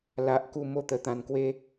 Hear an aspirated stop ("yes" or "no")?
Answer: no